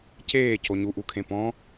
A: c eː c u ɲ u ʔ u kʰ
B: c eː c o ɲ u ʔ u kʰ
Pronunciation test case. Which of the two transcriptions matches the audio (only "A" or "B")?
B